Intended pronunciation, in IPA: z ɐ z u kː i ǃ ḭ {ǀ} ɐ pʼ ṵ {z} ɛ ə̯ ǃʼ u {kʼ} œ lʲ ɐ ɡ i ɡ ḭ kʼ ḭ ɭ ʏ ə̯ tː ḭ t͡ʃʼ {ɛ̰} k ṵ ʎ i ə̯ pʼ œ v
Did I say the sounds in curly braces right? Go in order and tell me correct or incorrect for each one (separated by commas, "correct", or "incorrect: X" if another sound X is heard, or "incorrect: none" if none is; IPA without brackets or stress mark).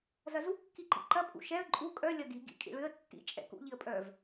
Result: incorrect: ǃ, incorrect: ʃ, correct, correct